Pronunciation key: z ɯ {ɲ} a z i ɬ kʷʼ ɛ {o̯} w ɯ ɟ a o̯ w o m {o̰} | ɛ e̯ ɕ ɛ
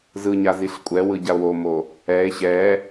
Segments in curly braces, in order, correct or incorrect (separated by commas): correct, incorrect, incorrect